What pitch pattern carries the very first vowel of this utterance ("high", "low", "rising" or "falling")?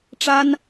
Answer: high